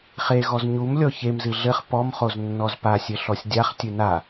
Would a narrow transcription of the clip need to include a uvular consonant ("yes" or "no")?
yes